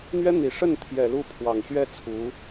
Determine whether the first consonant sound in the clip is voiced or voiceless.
voiced